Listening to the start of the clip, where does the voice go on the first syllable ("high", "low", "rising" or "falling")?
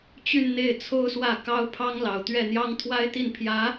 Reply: falling